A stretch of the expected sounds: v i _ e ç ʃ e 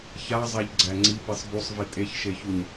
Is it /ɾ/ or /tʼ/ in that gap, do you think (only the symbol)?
tʼ